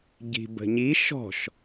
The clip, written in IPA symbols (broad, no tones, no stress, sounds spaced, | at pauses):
ɟ i̤ b ə̤ ɲ i ʃ ɔ̤ ʃ